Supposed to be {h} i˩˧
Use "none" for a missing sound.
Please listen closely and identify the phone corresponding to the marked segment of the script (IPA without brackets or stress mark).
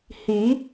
h